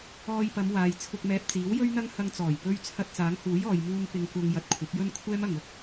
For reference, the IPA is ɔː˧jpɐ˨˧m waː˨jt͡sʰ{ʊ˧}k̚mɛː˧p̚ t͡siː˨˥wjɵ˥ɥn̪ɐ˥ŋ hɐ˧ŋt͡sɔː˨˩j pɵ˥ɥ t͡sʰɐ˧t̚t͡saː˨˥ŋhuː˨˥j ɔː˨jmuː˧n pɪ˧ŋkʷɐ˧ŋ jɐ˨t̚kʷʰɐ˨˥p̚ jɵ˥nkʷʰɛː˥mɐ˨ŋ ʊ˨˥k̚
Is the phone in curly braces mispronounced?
no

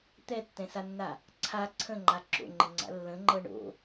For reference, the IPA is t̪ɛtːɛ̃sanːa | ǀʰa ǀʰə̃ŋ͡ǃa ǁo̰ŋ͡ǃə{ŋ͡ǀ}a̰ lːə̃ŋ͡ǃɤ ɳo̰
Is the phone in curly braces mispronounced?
no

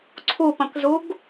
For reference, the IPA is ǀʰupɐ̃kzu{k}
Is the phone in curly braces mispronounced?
yes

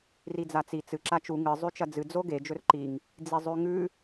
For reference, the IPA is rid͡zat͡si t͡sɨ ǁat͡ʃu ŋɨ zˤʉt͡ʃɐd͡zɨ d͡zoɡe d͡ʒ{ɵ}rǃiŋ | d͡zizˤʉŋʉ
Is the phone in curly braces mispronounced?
no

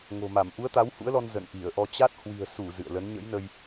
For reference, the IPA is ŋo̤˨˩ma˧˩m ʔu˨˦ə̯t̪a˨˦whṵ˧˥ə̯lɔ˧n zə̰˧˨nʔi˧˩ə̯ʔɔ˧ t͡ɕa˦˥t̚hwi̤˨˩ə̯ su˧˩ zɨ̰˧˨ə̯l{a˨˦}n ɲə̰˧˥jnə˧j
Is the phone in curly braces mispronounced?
yes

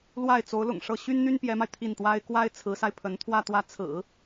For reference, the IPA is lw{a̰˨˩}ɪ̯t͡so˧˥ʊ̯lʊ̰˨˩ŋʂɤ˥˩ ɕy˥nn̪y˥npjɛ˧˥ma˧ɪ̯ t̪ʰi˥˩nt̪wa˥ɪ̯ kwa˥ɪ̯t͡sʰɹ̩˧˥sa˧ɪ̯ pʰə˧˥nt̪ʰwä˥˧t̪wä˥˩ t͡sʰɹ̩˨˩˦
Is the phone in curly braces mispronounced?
yes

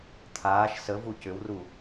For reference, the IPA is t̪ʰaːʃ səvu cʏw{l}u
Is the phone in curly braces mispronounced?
yes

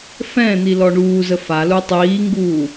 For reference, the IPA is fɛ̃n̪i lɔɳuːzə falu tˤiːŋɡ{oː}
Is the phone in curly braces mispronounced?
yes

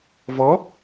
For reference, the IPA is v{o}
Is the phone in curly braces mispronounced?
yes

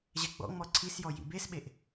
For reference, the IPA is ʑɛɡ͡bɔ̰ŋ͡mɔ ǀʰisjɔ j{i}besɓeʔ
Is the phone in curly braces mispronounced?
yes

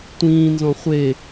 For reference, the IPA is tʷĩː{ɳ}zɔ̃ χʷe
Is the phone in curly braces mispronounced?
yes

